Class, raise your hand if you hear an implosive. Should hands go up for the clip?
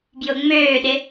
yes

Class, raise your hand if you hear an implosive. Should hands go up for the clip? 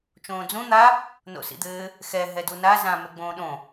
yes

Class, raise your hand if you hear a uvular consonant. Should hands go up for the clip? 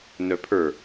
no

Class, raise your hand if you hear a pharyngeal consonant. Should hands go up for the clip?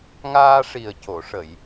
no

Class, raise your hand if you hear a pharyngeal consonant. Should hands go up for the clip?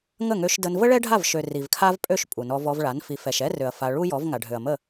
no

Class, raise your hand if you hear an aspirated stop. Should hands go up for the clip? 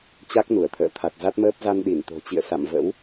yes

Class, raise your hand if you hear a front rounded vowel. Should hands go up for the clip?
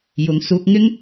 no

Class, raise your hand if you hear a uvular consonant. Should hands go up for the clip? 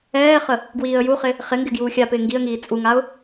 yes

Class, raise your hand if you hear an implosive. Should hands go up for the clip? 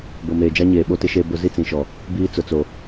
yes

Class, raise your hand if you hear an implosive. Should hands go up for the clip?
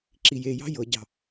no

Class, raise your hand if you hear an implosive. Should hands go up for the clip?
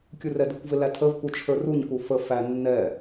no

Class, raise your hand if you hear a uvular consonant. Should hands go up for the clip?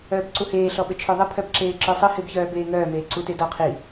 yes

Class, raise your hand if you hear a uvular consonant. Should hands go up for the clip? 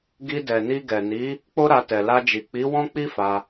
no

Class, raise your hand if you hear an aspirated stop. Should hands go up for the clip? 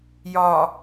no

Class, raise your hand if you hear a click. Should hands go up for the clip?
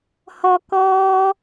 no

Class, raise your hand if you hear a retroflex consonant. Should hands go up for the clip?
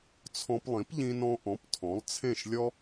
no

